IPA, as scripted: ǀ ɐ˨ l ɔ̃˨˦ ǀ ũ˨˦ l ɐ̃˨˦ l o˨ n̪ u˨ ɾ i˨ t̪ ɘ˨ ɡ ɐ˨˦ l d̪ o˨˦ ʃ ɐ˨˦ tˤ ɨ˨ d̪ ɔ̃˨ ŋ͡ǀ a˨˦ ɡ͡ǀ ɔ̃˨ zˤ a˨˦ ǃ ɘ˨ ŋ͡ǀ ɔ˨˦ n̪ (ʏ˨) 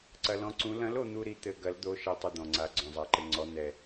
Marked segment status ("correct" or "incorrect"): incorrect